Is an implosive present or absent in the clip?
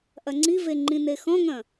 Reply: absent